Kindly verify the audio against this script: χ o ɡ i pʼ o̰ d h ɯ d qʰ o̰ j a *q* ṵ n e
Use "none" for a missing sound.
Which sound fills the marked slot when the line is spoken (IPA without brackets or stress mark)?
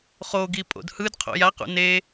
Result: q